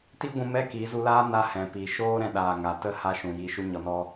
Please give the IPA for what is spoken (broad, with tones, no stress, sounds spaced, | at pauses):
t i˦ ɡʷ ũ˧ m ɛ˦ k i˨˦ z u˧ l aː˦ n a˦ h ɛ̃˨ p i˨ ʃ oː˦ ɾ ɛ̃˧ ɗ aː˨ ŋ a˨ t ə˦ h a˧ ʃ ũ˨ j i˧ ʃ u˦ ɲ ɔ˧ n ɔ˦